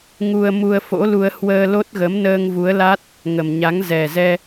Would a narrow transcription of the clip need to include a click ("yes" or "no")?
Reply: no